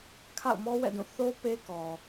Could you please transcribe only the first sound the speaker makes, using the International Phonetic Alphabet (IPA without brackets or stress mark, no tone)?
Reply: kʰ